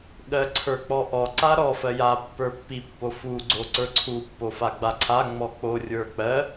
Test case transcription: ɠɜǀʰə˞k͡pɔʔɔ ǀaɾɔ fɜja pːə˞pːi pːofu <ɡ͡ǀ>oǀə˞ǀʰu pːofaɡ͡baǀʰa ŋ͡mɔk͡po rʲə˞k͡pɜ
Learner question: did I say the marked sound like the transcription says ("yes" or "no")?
yes